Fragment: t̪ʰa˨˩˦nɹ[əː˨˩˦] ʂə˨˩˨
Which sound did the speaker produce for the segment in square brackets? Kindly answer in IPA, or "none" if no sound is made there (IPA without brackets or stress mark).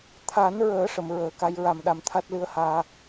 əː˨˩˦